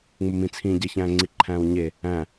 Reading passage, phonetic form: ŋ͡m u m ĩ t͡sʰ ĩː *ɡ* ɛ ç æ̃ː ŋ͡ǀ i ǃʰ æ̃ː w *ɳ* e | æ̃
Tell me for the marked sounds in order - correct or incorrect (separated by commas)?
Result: incorrect, incorrect